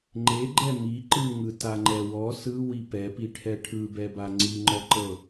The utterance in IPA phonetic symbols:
ŋ͡ǃ e ɡ͡ǃ ɛ m i ǃ ɯ ŋ ɯ t a ŋ͡ǃ ɛ w ɔ s ɯ w i p ɛ p i ʈʰ ɛ ʈʰ ɯ b ɛ b a ŋ͡ǀ i ŋ͡ǃ ɔ ǃ ɤ

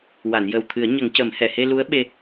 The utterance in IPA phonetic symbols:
w a˨˩˨ n j əː˨˩ w t̪ʰ ɨ˨˩˦ ə̯ ɲ ə˨˩˦ ŋ c ə˨˩˦ m h ɛ˨˩˨ h e˧ l u˧˥ ə̯ ɓ e˧

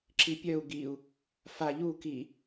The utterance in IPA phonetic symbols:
ǁ i pʲ œ u̯ ɡ i u̯ | f a ʎ u k i

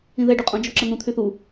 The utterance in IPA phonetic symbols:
ĩ ð ɛ ɖ y qʼ õ d͡ʒ ɔ ǁ ə n̪ ũ t̪ʰ y θ u

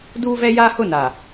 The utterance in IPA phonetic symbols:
d uː˦ v ɛ˦ j a˦ h ʊ˦˨ n a˨

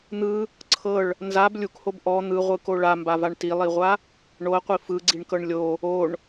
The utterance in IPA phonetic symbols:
n̪ ɯ | ǀʰ ɤ ɭ | n z a b lʲ u k h o b ʔ ɔ n̪ ɯ ʁʷ ɯ k o ɭ a m b a v a ɳ t i lˠ i ʁʷ a | ɳ o ɐ̯ qʷ i f ɯ ɡ͡ǀ i ɳ k ɤ ɳ lʲ o | o ɳ

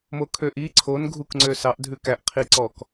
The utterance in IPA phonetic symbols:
m o kʰ ø ʔ i ǀʰ o n ɡʱ u k ŋ͡ǀ ø s ɑ ʔ dʱ ʉ k æ ʔ qʰ i ǀ ɔ k

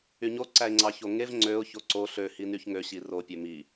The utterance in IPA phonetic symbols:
y ɲ o ǀ æ ɪ̯ ŋ͡ǀ ɑ ç o ŋ e v ŋ͡ǀ ø ʊ̯ ç o ǀ o ɬ ø h i n y ç ŋ ø ɕ i r o pʲ ø m i

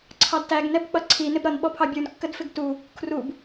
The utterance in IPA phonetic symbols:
ǀʰ ɑ d t æ ɡ n ɛ b k͡p ʌ ǀʰ i n ɪ b ɾ ʌ n ɓ ɔ pʰ ɑ bʲ u n kː ə d f ɪ ɡ t u | kʰ r u b

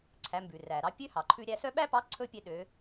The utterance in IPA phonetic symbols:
ǀʰ æ˩˧ m b ʉ˩ r æ˩ ɾ ɑ˧ pʲ ø˥ h ɑ˩ ǃʰ ʉ˧ ɾʲ æ˧ s œ˥ ɓ æ˥ p ɑ˧˥ ǀʰ ɵ˥ pʲ e˧ ɗ ø˩˧

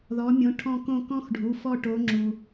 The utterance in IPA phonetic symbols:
ð ɔ˨˦ mʲ õ˨˦ ʈʰ ɔ̃˦˨ k õ˦˨ k ɔ̃˥ x ɖʱ u˩˧˩ f ɔ˦˨ ʈ o˨˦ ŋ͡ǁ u˩

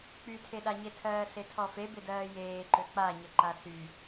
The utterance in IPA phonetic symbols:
k͡p y tʰ e ɗ a ɲ e tʰ ɜː ɬ e tʰ ɔ f e b ɪ d ɜː j eː ǃ ø k͡p a ɲ ɪ ǃ a s y

